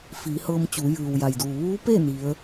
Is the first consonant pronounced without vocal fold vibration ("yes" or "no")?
yes